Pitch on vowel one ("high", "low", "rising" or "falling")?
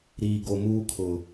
low